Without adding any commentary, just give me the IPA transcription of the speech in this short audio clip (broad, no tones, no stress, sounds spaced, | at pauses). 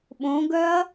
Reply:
ɓ õ ɡ œ ɐ̯